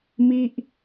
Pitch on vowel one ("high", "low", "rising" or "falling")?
falling